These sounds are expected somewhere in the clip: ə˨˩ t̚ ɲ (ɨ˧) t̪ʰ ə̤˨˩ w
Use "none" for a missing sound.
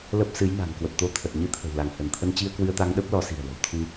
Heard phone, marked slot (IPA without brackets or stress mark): ɨ˧